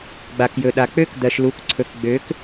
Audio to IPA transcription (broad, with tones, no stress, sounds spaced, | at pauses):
ɡ͡b a˩ k j ɵ˩ ɗ a˩ k͡p ø˧˥ k d̪ ɜ˩ ʃ l u˩˧ k ǀʰ ɵ˩ k ɡ͡b ø˩˧ k